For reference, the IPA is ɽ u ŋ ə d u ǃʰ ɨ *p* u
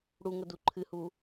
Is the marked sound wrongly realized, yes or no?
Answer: yes